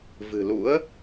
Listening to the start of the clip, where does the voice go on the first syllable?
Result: low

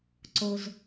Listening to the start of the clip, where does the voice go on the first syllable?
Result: low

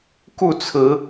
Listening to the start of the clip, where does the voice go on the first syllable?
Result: falling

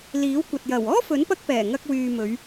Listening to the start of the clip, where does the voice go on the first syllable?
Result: rising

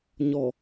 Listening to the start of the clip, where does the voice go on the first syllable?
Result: low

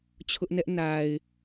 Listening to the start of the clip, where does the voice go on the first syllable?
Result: high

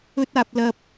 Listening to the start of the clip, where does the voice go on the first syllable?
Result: high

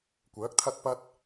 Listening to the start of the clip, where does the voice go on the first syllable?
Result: rising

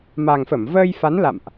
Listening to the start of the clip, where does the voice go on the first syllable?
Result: low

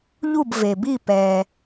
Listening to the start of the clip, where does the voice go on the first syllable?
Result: falling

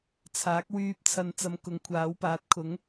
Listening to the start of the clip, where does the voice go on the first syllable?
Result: rising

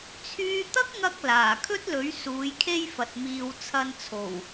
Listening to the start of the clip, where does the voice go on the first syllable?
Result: high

